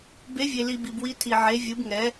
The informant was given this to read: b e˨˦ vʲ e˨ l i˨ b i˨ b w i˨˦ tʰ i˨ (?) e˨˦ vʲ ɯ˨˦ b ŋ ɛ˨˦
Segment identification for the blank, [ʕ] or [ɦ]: ʕ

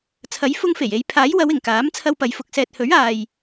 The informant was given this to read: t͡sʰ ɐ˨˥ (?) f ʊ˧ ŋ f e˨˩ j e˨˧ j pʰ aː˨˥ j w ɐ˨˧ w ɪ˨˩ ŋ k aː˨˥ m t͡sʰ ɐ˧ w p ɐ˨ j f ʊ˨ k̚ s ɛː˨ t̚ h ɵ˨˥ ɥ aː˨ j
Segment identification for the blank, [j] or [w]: j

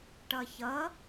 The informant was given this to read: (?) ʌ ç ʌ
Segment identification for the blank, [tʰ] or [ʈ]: ʈ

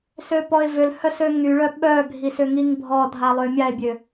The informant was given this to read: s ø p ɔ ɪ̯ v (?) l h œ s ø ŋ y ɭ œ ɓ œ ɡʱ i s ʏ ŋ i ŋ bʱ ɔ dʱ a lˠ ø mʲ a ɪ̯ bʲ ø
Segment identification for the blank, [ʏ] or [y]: ʏ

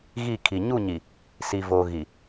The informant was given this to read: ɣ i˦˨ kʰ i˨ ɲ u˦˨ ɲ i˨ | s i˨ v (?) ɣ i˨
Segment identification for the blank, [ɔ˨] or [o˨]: o˨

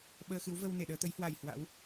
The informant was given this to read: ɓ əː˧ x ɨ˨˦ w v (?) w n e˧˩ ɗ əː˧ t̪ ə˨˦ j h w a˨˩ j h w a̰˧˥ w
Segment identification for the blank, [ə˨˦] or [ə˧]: ə˧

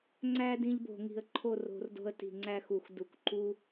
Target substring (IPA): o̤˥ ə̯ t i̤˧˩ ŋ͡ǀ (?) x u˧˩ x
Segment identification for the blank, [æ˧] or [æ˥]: æ˥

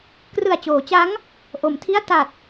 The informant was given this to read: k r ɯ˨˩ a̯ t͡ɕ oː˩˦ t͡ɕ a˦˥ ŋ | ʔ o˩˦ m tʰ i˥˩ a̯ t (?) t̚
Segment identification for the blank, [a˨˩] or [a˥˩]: a˨˩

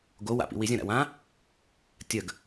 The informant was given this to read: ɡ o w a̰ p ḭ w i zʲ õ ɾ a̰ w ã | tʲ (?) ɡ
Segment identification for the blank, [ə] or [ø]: ə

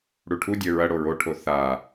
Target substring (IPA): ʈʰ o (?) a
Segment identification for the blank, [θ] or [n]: θ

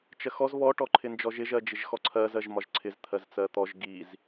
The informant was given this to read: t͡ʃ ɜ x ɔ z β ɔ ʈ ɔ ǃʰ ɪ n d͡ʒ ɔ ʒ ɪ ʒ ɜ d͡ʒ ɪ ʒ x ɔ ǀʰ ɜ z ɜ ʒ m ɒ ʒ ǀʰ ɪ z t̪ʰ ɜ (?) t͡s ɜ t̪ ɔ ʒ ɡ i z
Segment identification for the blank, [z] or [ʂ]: z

